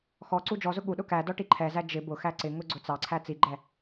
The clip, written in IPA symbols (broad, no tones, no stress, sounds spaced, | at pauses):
x ɔ ǀ u d͡ʒ ɔ z ʊ ɠ u ɗ ʊ k æ d ɔ ʈ i ǃʰ ɛ z æ d͡ʒ ɪ b ʊ x æ ǀ ɪ ŋ ʊ ɡ͡ǀ ʊ t͡s ɑ ǀʰ æ t͡s i ɡ͡ǃ ɛ